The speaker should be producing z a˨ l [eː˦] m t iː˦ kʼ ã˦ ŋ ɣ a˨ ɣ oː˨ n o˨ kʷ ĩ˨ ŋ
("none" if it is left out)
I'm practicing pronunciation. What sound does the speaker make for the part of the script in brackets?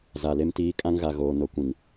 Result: e˦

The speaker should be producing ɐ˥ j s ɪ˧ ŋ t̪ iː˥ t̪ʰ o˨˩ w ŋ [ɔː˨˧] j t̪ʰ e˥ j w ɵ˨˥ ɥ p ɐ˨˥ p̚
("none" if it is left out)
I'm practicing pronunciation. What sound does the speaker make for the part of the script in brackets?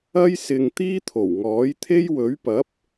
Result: ɔː˨˥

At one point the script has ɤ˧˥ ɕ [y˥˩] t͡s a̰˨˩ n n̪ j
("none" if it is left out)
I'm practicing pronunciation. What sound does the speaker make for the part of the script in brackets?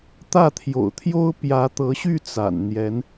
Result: y˥˩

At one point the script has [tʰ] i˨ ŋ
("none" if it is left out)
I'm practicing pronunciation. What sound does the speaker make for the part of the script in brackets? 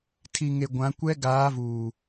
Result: tʰ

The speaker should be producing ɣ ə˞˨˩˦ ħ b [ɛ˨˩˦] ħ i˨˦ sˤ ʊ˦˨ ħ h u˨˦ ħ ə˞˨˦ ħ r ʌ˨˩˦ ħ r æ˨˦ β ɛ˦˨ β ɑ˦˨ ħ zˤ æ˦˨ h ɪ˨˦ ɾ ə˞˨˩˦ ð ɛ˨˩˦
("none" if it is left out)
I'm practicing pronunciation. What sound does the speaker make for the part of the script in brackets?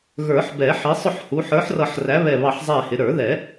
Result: ɛ˨˩˦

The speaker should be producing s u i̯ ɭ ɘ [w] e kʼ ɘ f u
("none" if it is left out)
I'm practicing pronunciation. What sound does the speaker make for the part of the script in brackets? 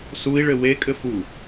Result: w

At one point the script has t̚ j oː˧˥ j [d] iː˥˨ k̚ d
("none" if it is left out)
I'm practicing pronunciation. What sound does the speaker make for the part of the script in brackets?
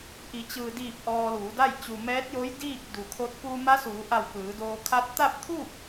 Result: d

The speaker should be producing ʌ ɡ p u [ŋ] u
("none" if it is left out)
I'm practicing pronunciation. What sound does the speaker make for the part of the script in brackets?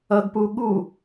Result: ɠ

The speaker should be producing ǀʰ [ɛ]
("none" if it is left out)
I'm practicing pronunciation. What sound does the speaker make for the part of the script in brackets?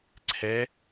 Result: ɛ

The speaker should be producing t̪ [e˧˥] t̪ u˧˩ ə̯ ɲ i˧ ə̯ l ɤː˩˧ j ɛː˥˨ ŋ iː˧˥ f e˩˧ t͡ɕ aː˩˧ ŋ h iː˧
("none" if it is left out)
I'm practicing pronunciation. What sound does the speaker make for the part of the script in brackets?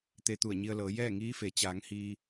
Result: e˧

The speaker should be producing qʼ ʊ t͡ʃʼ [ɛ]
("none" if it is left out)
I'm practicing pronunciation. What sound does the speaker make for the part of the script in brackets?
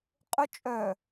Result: œ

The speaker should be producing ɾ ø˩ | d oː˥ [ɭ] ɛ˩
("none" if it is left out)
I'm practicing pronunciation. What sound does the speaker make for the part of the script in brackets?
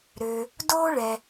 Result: ɭ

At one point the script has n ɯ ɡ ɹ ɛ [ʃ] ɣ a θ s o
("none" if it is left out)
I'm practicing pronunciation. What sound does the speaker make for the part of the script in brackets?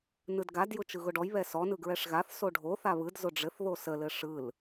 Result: ʂ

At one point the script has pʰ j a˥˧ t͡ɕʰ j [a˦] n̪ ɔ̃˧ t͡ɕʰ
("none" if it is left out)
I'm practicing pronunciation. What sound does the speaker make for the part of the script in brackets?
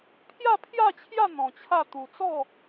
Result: a˥˧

